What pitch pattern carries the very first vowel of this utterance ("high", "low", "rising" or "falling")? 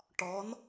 rising